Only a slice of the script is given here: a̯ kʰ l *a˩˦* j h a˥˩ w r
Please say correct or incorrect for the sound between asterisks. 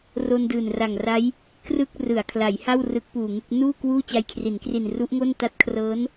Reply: correct